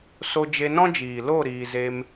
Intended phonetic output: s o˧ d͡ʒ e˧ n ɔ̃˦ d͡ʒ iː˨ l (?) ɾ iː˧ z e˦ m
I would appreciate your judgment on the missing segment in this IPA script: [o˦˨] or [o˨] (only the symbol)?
o˦˨